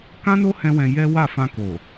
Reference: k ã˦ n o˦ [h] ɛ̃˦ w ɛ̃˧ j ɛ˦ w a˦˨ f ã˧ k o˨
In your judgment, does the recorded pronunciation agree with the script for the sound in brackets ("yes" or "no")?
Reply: yes